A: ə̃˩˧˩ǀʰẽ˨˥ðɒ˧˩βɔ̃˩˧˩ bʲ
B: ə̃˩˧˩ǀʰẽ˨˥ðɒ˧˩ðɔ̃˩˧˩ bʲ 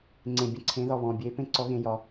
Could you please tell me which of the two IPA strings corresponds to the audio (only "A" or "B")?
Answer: A